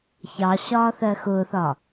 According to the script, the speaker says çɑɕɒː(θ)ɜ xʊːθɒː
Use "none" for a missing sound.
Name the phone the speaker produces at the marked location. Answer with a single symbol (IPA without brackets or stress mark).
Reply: θ